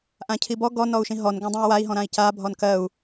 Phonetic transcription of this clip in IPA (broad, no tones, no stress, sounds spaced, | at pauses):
ʔ ã cʰ i b ɔ ɡ ɔ n ɔ u̯ ʃ ĩ ɦ ɔ n ɡ ɔ̃ dˤ ĩ u̯ w a i̯ ɦ ɔ̃ ɾ ã i̯ c a bʱ ɔ n k ɜ u̯